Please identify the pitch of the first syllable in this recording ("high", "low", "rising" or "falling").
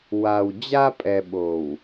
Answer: low